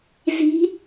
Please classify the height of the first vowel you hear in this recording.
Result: high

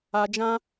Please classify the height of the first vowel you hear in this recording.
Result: low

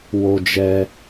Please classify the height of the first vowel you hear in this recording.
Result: mid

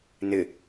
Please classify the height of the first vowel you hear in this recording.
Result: high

